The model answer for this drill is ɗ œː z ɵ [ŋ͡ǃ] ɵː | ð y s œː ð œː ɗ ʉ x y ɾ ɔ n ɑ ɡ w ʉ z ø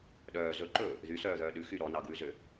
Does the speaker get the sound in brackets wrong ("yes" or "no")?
yes